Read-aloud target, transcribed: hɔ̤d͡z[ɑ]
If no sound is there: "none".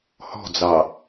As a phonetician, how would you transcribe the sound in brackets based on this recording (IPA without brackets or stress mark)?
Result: ɑ